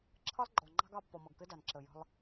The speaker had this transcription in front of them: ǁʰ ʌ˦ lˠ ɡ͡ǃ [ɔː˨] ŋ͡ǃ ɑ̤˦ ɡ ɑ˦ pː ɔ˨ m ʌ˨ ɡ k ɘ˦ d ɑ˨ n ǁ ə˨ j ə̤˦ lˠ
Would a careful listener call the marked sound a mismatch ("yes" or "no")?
yes